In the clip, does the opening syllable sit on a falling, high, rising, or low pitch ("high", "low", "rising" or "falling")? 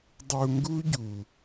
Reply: low